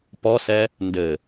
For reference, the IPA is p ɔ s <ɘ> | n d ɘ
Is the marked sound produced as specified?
no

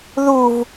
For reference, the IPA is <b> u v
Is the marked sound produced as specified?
no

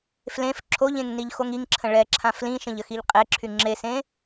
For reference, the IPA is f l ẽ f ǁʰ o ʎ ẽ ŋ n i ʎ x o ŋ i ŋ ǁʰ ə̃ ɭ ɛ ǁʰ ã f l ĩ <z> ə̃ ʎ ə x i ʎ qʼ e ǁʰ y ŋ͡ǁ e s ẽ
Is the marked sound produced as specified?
no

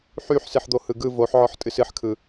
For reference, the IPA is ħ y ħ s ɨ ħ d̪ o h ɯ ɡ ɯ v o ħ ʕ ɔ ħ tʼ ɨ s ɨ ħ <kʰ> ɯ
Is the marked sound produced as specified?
yes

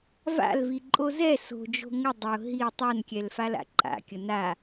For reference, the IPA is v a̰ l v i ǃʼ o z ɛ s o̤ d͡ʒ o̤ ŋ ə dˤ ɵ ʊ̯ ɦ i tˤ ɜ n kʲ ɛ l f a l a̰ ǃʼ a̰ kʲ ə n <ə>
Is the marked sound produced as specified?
no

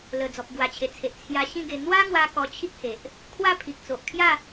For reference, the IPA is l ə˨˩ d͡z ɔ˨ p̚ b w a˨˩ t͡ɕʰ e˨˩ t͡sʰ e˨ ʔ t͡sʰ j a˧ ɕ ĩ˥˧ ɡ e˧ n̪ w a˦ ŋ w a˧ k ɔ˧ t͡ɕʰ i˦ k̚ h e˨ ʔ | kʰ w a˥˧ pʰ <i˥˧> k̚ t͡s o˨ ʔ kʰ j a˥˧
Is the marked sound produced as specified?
no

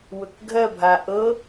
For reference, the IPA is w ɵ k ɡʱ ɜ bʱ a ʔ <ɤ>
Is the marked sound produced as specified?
yes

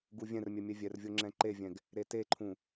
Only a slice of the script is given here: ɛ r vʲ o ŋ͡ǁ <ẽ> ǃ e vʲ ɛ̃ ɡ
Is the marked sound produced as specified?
no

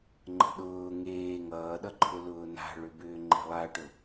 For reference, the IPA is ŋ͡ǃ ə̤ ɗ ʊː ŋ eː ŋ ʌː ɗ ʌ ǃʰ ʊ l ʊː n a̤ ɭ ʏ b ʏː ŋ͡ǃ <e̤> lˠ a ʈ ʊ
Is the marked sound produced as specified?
yes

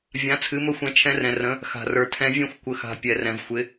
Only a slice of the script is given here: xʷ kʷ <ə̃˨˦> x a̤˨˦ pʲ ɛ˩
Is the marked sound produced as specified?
no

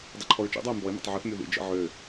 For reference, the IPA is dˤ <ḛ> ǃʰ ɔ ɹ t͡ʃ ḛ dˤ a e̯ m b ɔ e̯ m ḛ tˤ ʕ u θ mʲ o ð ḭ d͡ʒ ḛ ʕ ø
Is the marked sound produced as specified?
no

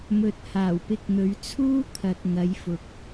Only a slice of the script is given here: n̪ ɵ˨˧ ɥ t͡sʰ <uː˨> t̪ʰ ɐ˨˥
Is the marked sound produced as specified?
no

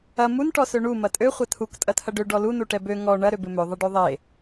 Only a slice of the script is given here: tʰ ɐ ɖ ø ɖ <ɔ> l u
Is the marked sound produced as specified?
yes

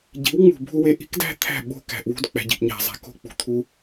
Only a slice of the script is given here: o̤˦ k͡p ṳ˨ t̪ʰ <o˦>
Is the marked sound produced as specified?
no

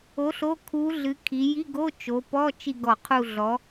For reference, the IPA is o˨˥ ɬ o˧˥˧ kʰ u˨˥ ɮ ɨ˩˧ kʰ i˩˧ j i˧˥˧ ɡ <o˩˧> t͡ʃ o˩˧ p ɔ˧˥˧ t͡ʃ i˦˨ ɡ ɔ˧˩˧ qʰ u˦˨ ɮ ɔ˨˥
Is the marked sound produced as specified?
no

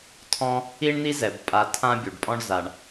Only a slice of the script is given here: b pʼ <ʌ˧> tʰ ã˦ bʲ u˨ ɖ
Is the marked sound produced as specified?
no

